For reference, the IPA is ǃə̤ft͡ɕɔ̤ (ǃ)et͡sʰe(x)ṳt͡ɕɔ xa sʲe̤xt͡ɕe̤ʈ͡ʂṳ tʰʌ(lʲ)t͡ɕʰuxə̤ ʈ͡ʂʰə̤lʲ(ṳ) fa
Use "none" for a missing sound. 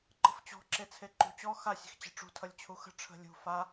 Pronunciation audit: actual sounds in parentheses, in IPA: ǁ, ǃ, lʲ, ṳ

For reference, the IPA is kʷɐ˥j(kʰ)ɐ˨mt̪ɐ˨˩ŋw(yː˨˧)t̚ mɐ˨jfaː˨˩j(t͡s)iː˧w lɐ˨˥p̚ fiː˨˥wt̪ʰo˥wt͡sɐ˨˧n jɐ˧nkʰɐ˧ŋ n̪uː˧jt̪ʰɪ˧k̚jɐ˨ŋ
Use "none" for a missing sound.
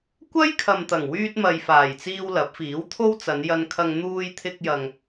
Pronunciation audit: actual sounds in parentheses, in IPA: kʰ, yː˧, t͡s

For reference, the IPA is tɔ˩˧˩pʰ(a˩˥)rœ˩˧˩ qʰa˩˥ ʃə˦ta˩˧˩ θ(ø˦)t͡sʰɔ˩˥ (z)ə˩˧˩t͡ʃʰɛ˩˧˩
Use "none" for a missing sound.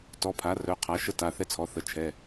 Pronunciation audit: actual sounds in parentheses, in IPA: a˩˥, ɛ˦, θ

